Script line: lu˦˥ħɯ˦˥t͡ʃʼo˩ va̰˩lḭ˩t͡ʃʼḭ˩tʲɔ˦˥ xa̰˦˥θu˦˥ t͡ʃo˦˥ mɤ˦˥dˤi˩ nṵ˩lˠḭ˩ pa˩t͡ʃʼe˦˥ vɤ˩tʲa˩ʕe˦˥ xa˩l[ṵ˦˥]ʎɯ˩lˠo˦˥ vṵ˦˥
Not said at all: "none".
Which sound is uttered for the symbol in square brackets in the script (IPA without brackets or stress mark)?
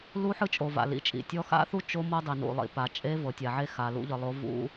ṵ˦˥